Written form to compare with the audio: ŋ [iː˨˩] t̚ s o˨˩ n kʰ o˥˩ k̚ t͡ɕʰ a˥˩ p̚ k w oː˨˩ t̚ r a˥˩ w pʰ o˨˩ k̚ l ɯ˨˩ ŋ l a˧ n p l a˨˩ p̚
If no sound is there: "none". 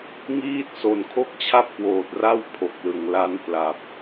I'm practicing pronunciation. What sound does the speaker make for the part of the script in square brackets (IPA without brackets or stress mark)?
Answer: iː˥˩